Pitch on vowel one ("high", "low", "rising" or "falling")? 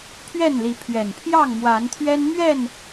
falling